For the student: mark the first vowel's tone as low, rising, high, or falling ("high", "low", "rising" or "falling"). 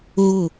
falling